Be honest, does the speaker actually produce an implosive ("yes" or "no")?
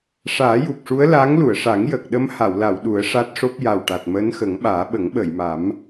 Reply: yes